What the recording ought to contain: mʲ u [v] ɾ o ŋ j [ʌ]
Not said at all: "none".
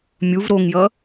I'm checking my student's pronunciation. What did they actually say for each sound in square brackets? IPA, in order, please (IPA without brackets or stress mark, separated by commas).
v, ʌ